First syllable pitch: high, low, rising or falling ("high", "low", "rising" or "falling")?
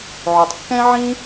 low